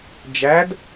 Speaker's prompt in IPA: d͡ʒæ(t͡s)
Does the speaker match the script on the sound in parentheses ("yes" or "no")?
no